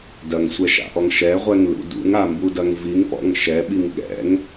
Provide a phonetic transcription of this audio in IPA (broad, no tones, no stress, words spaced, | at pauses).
dɐŋsʷɛʃa̰ʔɔŋ ʃɛʁʷɛŋlṵ dṵŋambudɐŋ viŋpɔ̰ŋ ʃɛɓiŋ ɠɛ̰ŋ